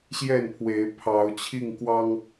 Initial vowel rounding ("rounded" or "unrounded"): unrounded